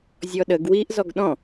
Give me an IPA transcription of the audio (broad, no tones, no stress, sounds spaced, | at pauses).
zʲ ɔ ɗ ə ɡ w i ʔ z ɔ ɡ ɗ ɔ̃